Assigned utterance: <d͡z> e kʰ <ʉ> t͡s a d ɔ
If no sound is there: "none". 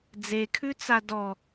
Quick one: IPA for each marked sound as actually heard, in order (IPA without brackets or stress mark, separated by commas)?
d͡z, ʉ